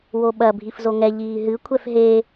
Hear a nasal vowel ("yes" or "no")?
no